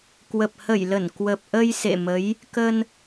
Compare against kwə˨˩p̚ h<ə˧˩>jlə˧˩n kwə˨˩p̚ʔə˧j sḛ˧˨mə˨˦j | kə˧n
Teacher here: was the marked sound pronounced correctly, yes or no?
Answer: yes